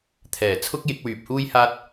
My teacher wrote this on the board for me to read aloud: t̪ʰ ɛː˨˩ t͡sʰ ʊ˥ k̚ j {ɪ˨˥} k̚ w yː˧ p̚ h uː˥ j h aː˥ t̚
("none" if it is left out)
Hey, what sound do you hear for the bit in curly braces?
ɪ˨˥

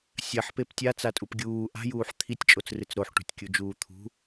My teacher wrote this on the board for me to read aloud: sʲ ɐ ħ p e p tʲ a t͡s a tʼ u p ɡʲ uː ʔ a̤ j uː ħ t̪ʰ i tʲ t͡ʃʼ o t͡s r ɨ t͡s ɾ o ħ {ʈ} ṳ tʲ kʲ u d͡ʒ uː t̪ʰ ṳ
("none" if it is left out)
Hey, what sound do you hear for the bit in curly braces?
ʈ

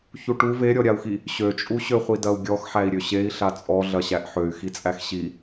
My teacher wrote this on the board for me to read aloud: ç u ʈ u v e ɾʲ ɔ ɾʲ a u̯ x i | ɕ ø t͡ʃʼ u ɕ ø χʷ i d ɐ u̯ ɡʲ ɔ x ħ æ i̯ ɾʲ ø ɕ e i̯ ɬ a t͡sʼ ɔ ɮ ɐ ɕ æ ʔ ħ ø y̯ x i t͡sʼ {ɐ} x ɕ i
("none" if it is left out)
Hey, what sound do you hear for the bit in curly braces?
æ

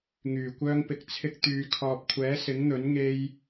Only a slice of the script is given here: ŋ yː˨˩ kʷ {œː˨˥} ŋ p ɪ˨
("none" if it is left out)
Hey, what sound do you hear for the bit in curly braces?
œː˧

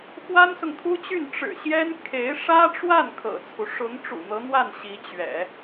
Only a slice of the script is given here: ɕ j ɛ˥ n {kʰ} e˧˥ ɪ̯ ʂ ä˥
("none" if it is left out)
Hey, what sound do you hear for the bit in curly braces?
kʰ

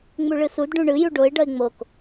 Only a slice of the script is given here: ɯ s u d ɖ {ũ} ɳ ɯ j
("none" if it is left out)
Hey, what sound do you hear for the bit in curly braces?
ũ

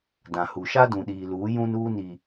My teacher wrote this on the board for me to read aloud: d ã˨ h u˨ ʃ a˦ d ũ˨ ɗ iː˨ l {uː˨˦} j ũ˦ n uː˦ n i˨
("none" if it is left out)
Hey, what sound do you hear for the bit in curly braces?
uː˨˦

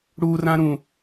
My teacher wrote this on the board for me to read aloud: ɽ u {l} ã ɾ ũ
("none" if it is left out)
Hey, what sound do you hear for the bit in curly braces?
r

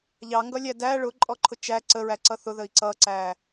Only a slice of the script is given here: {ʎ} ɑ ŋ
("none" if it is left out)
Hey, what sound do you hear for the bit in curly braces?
ʎ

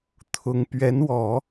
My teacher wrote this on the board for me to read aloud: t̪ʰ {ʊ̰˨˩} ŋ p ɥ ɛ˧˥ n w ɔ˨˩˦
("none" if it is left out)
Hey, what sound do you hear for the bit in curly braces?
ʊ˧˥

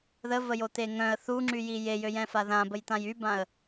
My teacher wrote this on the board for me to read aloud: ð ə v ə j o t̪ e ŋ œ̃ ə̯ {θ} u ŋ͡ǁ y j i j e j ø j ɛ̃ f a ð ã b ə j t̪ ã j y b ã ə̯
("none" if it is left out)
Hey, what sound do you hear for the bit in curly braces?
θ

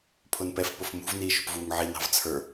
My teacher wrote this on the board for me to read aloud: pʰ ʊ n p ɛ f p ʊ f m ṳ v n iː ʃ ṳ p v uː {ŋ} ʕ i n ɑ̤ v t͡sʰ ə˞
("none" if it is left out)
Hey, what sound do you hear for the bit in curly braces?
ŋ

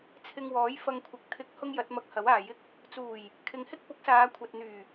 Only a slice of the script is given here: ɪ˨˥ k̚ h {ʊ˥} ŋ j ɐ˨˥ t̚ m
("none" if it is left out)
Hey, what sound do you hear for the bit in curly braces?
ʊ˥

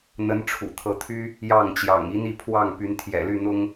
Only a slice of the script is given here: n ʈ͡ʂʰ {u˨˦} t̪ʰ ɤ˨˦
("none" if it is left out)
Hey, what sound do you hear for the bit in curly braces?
ṵ˨˩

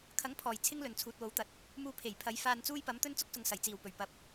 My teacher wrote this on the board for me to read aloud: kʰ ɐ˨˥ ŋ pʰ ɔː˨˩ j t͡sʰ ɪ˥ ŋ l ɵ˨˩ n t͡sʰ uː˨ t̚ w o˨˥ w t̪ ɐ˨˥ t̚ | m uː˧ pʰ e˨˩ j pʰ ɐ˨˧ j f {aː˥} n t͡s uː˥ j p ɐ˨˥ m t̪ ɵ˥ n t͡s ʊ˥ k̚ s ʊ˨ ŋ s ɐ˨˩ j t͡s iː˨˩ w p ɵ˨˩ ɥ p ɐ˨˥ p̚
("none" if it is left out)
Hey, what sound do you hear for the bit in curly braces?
aː˧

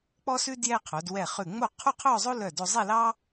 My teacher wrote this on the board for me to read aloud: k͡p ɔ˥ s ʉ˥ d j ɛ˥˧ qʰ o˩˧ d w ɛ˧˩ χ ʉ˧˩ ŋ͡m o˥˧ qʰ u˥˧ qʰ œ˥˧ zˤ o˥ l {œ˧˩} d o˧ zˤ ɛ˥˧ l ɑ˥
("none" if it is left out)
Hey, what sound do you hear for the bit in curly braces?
œ˧˩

